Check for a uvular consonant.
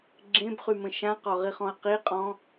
present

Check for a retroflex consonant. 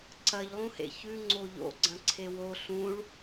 present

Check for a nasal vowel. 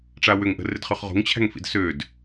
absent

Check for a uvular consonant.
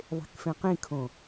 present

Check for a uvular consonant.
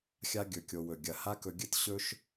absent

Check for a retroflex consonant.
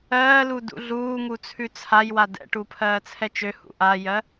present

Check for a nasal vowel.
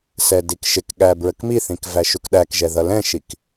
present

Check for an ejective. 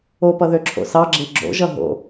absent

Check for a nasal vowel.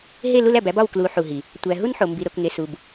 absent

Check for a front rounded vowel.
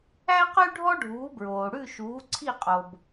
present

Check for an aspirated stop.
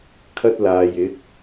present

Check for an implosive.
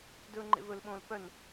present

